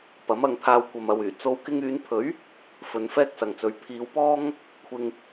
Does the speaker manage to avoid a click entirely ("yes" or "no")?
yes